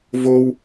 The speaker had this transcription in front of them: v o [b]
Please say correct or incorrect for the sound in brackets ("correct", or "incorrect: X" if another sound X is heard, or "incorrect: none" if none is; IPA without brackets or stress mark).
incorrect: w